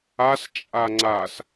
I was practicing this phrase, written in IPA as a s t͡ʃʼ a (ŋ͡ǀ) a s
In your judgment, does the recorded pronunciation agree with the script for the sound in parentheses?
yes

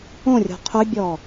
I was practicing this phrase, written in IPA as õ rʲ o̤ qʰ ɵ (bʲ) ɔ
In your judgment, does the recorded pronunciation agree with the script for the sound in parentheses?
yes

